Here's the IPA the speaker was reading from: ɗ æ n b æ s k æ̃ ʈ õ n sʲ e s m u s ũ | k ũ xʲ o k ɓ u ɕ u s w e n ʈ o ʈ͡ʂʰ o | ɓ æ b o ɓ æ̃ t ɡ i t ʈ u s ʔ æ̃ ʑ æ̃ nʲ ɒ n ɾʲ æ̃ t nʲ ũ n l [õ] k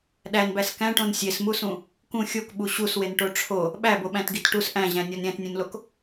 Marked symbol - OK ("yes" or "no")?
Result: no